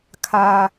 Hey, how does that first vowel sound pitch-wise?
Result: low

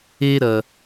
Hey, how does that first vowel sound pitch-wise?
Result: high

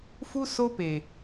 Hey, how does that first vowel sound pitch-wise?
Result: high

